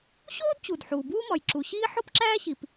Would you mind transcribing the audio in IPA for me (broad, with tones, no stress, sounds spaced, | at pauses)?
ɕ oː˥ d t͡ɕ u˩ d ħ uː˩ b uː˥ m ɒ˩ j ǁ u˩ ɕ iː˥ ħ o˥ p ǁ æː˥ ɕ i˩ p